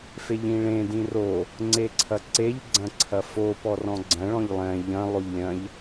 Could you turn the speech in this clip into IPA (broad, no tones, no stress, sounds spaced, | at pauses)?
f e ʎ ĩ ɭ ẽ d ĩ r o | ŋ͡ǀ e ǀʰ ɐ ǀ e ʎ ɡ͡ǀ ɐ̃ ǀʰ ɐ f o p ɔ r ɔ̃ ɡ͡ǀ ɐ̃ ɭ ɔ̃ ʎ lˠ ɛ̃ ʎ ɐ̃ lˠ o ʎ lʲ ɐ̃ ʎ